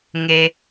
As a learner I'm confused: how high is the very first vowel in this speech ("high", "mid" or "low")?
mid